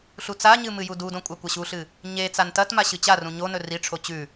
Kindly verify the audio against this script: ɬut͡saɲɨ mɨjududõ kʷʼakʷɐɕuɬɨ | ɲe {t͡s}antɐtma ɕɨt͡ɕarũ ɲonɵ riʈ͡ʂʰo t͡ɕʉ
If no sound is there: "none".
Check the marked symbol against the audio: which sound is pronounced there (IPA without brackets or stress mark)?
t͡s